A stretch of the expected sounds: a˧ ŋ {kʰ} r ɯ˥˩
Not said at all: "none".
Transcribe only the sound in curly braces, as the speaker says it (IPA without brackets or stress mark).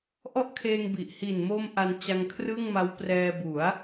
kʰ